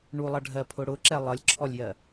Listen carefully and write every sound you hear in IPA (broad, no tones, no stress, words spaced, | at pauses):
ɳulˠʌɖʱɜpʰʊ ɽʊǁɛ lˠʌlʲǁʰɔlʲjɜ